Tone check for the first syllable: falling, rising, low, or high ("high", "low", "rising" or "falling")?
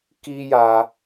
high